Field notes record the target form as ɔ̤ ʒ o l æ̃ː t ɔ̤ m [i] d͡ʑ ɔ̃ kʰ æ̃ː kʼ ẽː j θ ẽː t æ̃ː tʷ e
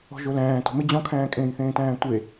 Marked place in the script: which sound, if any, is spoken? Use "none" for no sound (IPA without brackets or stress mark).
ɪ